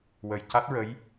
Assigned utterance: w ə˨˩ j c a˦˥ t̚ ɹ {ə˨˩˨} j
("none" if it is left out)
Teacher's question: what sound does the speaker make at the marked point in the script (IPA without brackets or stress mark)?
ə˧˥